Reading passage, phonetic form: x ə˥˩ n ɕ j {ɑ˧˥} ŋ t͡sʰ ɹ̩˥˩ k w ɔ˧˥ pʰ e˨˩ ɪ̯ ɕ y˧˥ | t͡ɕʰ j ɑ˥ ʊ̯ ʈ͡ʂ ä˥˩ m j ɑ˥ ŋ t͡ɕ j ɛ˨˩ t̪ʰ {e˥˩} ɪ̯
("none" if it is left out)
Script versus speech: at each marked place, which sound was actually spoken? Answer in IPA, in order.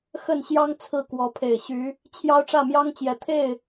ɑ˥, e˥˩

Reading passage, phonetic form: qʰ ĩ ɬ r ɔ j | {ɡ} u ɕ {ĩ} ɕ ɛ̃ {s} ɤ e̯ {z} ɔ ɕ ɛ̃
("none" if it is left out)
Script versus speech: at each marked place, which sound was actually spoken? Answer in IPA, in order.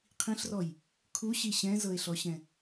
kʰ, i, z, ɬ

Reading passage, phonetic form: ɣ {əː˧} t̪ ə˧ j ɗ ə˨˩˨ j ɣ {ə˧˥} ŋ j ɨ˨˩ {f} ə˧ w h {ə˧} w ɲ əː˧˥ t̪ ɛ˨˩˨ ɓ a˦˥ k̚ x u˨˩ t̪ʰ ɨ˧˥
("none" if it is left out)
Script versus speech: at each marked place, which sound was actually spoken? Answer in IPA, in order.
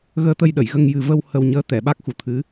əː˧, ə˧, v, ə˧

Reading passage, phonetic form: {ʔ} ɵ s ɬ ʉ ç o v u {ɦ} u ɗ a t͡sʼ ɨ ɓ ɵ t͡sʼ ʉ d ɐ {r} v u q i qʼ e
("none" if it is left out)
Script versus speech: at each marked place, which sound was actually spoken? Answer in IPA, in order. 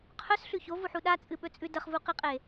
qʰ, ħ, χ

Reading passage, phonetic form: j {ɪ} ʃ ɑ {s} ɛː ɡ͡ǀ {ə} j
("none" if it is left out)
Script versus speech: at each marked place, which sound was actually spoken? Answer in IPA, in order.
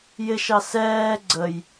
ɪ, s, ə

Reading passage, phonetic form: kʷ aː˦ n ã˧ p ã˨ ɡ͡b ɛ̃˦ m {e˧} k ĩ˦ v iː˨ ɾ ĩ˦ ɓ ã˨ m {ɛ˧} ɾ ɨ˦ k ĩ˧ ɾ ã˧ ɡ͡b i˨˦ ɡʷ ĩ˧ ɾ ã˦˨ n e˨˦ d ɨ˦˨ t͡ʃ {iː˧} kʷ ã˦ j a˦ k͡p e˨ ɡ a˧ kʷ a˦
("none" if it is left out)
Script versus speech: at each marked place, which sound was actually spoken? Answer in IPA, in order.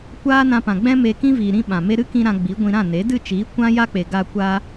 e˧, e˧, iː˨˦

